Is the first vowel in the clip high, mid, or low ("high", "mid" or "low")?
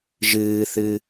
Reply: high